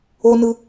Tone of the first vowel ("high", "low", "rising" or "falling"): high